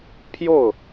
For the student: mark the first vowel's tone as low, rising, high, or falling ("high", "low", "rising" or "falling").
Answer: falling